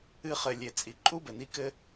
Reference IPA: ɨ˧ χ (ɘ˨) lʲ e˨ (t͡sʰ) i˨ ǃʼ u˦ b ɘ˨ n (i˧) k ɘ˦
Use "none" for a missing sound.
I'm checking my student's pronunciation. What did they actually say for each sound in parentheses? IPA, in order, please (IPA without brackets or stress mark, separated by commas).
ɘ˨, t͡sʼ, i˧